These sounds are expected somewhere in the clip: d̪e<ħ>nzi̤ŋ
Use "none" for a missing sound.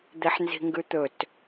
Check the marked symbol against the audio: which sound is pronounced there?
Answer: ħ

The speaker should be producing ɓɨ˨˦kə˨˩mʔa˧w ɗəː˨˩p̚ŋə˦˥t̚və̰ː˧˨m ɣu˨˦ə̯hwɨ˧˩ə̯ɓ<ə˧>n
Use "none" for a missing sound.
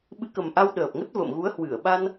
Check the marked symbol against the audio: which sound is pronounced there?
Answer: a˧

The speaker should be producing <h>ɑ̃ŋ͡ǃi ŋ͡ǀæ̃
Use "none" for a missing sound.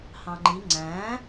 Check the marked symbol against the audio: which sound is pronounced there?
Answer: h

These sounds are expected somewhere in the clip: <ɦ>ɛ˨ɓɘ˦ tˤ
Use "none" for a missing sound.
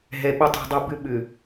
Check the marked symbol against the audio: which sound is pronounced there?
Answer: ɦ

